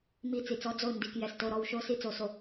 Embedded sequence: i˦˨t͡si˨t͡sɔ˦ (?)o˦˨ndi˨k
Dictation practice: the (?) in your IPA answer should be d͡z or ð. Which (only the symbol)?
d͡z